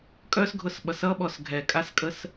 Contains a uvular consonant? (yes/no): no